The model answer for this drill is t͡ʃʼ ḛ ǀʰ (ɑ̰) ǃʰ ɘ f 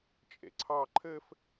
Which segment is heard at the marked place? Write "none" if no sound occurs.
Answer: ɑ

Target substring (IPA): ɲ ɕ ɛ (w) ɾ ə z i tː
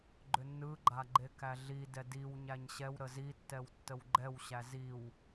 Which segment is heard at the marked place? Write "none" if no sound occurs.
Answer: w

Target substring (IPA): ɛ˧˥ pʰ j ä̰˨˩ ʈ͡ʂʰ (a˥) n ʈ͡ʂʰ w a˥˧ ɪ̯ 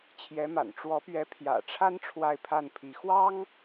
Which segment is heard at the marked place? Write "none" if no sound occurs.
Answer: a˥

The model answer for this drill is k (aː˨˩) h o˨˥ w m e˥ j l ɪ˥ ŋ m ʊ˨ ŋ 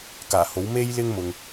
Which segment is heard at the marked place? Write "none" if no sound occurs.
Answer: aː˨˩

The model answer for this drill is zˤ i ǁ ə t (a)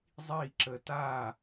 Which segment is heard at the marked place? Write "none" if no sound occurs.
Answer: a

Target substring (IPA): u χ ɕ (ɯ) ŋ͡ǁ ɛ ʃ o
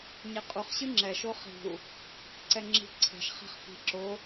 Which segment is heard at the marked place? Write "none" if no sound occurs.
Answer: ɯ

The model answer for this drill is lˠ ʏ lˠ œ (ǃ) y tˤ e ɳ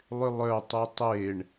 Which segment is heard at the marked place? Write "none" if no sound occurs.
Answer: tˤ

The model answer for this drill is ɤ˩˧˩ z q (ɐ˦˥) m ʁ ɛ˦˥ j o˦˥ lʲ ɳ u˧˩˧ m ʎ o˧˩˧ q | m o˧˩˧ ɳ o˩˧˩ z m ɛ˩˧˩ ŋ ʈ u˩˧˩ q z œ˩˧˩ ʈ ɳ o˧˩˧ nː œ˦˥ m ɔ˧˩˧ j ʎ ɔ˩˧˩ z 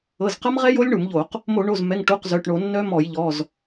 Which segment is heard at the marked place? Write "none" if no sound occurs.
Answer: ɐ˦˥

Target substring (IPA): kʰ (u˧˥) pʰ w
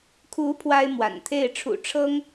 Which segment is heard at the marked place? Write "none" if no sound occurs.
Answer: u˧˥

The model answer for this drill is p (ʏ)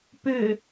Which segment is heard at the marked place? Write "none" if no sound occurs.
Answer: ʏ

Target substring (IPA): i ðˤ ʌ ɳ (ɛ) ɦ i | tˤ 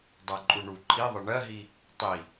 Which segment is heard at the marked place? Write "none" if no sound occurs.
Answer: ɜ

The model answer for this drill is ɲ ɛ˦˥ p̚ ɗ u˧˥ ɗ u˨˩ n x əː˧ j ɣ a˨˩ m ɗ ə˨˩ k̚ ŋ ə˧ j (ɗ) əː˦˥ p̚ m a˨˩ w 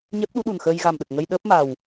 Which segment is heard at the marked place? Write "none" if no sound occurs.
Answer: ɗ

